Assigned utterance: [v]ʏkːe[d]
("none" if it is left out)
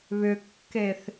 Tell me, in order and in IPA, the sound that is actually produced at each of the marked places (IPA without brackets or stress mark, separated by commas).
β, θ